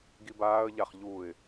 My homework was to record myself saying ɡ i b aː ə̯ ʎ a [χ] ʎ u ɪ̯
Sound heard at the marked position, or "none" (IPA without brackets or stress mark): χ